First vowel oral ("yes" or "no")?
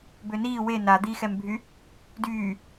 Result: yes